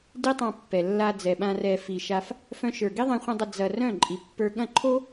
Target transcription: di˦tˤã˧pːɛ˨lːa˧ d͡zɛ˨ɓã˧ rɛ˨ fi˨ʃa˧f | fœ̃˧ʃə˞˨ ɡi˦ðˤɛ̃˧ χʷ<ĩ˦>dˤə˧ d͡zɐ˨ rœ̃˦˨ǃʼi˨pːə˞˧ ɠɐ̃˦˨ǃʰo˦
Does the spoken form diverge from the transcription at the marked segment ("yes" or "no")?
yes